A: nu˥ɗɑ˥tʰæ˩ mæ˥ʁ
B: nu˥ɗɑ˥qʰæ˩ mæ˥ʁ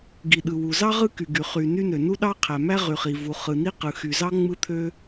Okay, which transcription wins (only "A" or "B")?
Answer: B